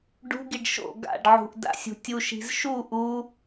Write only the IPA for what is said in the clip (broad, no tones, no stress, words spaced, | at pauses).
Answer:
ɖṳɡiɖ ʃo̰ ɡa̰ɖʕṳʔ da̰sʲṳtʲuʃi̤z ʃu ʔu